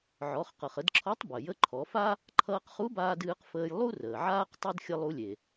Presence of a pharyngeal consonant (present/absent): present